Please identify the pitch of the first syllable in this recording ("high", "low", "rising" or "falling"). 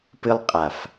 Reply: high